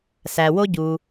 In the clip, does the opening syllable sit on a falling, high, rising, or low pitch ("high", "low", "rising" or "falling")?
low